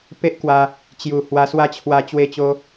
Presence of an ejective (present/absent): absent